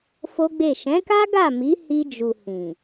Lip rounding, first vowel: rounded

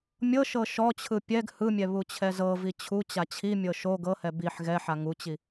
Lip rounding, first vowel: unrounded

